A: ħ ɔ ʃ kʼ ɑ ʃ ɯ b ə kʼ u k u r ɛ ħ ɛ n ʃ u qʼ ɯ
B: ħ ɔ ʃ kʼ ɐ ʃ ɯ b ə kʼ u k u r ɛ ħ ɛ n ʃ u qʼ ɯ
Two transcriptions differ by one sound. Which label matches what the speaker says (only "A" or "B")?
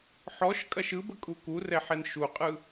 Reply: B